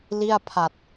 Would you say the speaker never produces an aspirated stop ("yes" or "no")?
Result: no